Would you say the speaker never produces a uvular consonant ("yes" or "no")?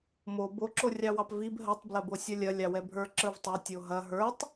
yes